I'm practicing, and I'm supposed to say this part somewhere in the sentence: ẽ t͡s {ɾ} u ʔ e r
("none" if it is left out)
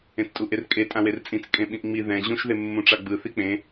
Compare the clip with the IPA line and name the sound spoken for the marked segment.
tʼ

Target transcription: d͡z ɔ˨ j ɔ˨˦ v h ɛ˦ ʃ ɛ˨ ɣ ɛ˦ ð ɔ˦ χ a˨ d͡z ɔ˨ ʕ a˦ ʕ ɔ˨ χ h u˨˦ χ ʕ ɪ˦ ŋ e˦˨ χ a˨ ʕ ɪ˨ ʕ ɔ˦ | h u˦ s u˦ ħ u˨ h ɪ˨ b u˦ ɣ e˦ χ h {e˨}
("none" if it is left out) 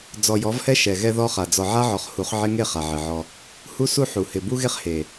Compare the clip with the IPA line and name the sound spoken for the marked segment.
e˨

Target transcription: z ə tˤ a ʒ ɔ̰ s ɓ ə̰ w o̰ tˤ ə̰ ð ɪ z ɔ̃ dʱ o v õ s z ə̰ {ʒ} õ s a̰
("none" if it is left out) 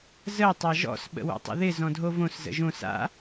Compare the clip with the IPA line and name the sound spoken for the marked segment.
ʒ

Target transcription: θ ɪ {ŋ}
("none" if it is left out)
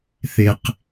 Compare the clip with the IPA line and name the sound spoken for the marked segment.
q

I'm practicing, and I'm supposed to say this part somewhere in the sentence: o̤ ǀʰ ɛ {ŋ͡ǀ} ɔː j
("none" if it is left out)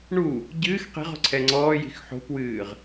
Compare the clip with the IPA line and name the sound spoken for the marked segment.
ŋ͡ǀ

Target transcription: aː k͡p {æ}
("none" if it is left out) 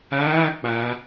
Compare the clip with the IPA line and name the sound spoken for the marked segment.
a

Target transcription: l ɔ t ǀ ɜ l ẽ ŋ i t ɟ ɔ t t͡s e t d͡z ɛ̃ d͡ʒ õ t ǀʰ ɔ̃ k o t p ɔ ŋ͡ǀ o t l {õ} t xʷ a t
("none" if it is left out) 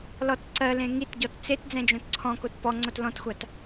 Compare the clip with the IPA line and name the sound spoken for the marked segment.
ɔ̃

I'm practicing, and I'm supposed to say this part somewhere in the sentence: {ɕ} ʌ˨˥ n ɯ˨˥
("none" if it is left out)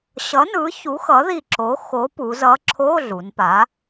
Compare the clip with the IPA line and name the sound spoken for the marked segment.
ɕ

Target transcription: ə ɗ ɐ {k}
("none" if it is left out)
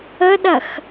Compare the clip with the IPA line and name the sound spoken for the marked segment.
x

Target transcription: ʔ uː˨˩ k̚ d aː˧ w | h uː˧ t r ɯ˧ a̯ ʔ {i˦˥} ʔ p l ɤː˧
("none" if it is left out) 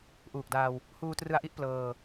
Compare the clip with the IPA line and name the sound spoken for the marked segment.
i˦˥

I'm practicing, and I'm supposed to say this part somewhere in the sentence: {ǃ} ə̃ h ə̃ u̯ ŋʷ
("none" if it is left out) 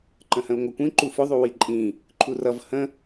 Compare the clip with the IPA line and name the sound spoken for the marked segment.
ǃ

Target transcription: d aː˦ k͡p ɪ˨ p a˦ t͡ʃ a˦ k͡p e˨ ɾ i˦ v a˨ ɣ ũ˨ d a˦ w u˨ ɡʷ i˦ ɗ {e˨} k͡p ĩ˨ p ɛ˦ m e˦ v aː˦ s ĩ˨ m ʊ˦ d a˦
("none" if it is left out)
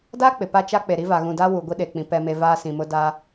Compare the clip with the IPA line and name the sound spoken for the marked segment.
e˨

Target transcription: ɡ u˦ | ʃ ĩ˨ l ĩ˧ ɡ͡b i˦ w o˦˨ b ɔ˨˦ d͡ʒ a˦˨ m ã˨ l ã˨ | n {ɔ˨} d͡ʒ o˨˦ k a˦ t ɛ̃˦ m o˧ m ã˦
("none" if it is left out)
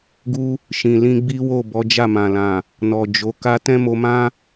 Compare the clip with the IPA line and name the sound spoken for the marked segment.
ɔ˨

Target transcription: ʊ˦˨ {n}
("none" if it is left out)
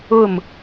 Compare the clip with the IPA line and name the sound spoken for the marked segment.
m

